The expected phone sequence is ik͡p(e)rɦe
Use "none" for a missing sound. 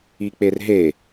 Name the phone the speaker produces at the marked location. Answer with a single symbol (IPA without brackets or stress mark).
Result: e